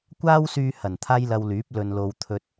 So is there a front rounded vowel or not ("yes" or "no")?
yes